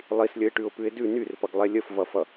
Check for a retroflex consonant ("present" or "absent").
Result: present